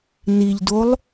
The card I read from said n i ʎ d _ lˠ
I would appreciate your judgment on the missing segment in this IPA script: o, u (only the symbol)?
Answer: o